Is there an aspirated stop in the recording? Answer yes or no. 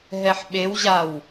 no